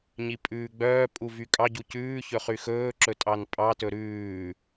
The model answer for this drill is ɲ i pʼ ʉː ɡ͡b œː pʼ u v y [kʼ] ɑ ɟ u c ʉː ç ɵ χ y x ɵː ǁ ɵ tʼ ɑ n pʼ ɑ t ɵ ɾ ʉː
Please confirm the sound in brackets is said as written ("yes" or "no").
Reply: yes